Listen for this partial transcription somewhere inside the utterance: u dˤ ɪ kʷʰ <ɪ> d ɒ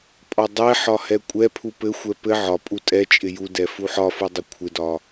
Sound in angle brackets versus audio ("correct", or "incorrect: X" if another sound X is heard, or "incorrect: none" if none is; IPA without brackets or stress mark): correct